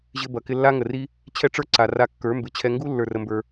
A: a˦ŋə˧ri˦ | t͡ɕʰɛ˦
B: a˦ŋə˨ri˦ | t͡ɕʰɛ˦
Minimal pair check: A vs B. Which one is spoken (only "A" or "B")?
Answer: B